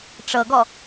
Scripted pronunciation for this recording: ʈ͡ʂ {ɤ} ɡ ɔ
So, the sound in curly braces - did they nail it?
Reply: yes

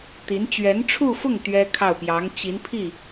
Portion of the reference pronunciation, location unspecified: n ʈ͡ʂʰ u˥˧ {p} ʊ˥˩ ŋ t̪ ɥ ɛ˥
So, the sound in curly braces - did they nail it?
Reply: no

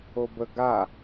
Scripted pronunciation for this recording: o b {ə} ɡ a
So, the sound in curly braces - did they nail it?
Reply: yes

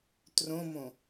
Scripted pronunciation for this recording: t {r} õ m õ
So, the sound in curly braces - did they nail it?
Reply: yes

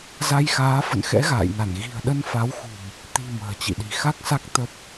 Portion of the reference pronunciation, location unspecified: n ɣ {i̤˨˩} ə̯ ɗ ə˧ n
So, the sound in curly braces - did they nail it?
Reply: yes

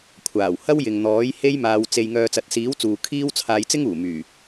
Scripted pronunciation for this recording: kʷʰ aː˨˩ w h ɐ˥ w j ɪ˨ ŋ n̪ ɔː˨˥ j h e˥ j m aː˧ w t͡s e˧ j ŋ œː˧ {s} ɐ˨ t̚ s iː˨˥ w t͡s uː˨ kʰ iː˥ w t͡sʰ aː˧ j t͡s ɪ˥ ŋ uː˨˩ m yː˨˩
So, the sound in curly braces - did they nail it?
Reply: no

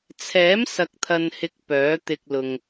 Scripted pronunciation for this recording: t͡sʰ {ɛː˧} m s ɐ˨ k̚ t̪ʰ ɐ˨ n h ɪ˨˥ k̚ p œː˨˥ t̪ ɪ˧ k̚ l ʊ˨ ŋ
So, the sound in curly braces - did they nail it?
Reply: no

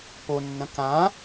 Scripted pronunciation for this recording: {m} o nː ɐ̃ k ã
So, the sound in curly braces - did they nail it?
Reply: no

